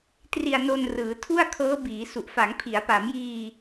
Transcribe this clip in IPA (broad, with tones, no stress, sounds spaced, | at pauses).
t r i˧ a̯ n o˧ n r ɯː˩˦ tʰ u˥˩ a̯ kʰ ɤː˦˥ b iː˩˦ s u˨˩ ʔ f a˩˦ ŋ pʰ i˩˦ a̯ p a˩˦ m j iː˧